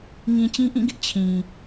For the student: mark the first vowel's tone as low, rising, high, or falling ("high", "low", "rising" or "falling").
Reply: low